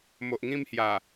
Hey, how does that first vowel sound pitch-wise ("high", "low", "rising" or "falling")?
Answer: low